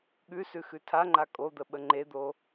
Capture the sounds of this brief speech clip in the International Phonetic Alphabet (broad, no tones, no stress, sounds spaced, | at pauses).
ɠ ʉ s ʉ x ʉ tʰ a ŋ͡ǃ a kʼ o d̪ ə ɓ ə ŋ͡ǃ e d̪ o